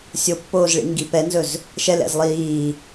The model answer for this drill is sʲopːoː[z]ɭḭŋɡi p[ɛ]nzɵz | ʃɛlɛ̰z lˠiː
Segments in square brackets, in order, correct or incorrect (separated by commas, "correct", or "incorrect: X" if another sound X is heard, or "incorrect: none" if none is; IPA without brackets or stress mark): correct, correct